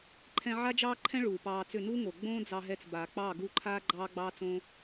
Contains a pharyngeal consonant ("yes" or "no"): yes